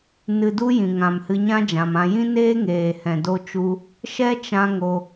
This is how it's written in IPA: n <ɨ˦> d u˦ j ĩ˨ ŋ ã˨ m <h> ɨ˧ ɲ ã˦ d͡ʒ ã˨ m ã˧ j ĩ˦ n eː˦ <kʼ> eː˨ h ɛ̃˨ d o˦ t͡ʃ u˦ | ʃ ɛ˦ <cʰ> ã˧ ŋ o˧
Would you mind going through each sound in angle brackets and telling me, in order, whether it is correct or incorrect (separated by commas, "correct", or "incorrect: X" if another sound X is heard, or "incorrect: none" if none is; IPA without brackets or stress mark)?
incorrect: ɨ˧, correct, incorrect: ŋ, incorrect: t͡ʃ